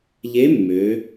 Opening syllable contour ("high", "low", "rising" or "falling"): rising